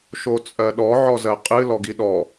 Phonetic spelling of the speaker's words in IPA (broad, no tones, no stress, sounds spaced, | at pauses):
ʃ o t͡sʼ ɜ ɗ ɔ ʕ ɔ z ɜ qʼ ɨ l ɔ ɡ i ɗ ɔ